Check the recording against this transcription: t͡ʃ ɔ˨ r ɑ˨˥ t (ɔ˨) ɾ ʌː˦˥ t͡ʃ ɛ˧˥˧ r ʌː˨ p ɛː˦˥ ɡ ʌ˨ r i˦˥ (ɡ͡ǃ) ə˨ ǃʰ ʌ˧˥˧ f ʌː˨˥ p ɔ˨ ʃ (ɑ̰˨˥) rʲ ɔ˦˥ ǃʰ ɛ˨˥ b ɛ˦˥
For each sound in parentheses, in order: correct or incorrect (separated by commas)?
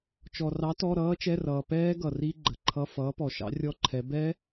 incorrect, correct, correct